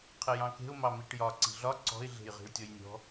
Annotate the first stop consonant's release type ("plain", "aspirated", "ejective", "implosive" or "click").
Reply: aspirated